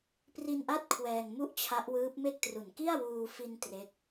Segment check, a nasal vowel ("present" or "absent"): absent